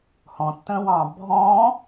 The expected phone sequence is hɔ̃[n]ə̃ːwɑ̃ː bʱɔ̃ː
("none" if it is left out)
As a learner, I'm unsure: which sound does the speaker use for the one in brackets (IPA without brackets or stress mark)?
tː